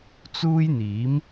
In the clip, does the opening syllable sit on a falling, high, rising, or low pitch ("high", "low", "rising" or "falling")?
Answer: high